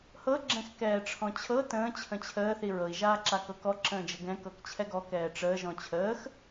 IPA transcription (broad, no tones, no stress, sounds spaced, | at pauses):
h ɤ ɡ͡ǁ ɛ̃ x k ɛː ʈ͡ʂʰ ɔ̃ t͡ɕʰ ɤ t ə̃ː t͡ɕʰ ə̃ t͡ɕʰ əː θ i ɹ ɤ i̯ ʒ aː ǁ a k ɤ k ɔ ǁ ə̃ː d͡ʒ ə ɡ ɛ̃ k ɤ k t͡ɕʰ ɛ ɡ ɔ k ɛː ʈ͡ʂ əː ʒ ɔ̃ t͡ɕʰ əː x